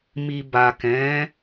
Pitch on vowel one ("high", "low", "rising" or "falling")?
low